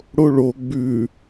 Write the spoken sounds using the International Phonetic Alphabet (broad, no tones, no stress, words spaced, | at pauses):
ɽoɭo ɡ͡bʉ